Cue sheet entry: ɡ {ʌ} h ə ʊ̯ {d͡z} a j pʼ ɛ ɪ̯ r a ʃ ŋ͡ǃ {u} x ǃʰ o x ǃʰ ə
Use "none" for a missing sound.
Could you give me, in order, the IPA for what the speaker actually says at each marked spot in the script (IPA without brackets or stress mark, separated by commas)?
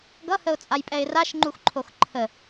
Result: ʌ, t͡sʼ, u